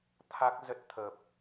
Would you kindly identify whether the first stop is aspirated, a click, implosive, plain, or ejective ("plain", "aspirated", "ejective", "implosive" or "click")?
aspirated